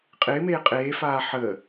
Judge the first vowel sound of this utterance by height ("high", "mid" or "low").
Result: high